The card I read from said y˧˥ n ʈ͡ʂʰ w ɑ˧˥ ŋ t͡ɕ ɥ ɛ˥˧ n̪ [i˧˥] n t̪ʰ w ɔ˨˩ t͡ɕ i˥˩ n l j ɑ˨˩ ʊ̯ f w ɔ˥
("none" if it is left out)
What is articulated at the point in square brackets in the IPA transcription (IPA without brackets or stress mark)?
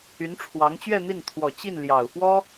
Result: i˥˩